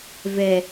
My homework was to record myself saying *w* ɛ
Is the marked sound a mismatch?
yes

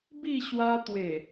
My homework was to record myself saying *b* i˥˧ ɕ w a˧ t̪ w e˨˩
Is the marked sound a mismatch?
no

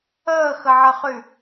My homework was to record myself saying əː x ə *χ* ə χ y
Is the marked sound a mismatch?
yes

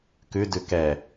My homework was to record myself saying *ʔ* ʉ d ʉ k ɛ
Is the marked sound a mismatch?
yes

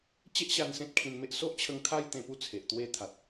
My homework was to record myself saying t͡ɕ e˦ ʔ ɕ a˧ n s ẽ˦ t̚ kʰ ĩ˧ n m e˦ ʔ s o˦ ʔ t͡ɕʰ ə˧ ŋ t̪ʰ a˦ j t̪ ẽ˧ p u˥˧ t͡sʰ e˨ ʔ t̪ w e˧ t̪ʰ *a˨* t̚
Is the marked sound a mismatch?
no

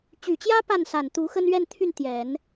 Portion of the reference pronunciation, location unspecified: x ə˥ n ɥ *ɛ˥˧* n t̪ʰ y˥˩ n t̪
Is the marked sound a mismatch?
no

